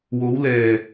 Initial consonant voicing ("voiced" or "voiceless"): voiced